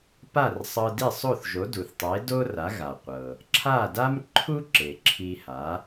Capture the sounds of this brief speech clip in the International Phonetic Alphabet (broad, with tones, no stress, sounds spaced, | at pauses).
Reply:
p a˥˩ r sˤ ɤ˧ d i˥˩ sˤ o˥˩ θ ʒ o˩˥ d u˩ θ tˤ e˩˥ d o˥ r a˩˥ ɣ a˩ qʷ ɤ˩ | ǁʰ a˥˩ d a˥ m ǃʰ u˥ ǁ e˩ ǁʰ i˧ h a˩˥